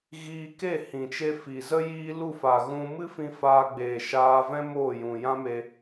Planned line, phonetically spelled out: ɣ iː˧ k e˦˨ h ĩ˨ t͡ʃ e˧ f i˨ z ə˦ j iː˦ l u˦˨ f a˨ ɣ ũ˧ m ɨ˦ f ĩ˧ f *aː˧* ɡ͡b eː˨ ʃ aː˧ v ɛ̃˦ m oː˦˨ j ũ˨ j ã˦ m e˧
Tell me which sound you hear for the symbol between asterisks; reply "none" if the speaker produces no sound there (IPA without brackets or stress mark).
aː˧